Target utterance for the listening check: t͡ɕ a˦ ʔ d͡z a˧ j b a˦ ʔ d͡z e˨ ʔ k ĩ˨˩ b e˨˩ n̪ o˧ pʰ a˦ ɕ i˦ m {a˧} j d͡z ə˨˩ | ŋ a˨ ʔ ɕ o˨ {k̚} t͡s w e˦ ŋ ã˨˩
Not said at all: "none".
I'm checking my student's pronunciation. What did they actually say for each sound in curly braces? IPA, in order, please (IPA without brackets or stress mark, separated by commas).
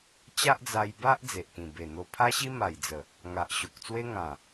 a˨˩, k̚